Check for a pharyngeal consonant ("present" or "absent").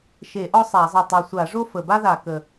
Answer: absent